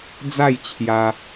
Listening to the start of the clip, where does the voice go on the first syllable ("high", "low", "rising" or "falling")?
falling